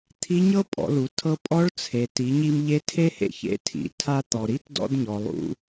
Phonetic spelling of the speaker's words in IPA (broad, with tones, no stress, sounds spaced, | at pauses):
t̪ʰ i˧˥ ɲ ɤ˥ pʼ ɔ̰˩˧ l u˩˧ tʰ ɤ˧ pʼ ɔ˧˥ ɭ t͡sʰ e˩ t i˩˧ ɲ i˧ m ʎ e˧˥ tʰ e˥ h ḛ˧ ç ḛ˧˥ tʰ ḭ˩˧ tʰ a˧ t̪ ɔ˩ ɾ i˧˥ t d ɔ̰˧ d ɲ ɔ˩ lˠ ṵ˧